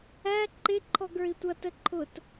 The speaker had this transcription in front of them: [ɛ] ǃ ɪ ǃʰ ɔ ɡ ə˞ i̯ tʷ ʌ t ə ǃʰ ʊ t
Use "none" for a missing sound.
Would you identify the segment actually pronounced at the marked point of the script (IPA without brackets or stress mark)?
æ